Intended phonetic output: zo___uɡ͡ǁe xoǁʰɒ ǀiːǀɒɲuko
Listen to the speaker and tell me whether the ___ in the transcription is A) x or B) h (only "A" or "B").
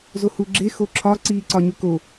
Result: B